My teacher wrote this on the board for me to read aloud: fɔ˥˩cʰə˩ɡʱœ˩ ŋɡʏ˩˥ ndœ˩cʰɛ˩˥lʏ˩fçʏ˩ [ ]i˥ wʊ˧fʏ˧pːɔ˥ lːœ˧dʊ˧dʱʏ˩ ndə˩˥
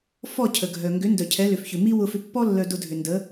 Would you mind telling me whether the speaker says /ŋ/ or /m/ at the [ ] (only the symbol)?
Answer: m